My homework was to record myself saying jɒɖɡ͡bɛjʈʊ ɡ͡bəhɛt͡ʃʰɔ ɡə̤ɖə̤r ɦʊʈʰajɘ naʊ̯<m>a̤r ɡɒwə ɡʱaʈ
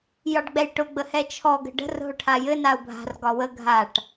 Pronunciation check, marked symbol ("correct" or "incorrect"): incorrect